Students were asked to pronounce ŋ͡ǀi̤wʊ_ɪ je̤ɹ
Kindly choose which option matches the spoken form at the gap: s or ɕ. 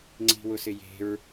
s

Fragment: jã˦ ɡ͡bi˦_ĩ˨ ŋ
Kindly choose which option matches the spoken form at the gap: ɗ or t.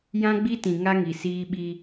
t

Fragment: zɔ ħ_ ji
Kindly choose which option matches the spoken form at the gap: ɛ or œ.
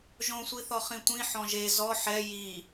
ɛ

